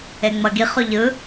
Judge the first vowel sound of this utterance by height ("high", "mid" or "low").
mid